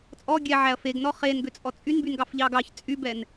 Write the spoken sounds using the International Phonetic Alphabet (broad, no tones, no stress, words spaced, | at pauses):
t͡sʼɔ ɡʲɛʕæɐ̯ feɡnɔ χenɡøt͡sʼɔ t͡sʼynbynɡɑfʎɑ ɡɑç t͡sʼybɛn